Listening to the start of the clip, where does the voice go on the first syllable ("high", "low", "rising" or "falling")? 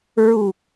low